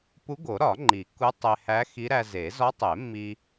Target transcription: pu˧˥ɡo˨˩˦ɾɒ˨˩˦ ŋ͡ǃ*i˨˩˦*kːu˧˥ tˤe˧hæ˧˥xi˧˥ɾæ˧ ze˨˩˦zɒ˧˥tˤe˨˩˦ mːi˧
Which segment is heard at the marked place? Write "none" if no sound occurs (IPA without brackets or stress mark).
i˨˩˦